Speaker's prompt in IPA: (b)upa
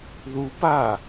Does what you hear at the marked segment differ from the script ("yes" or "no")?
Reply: yes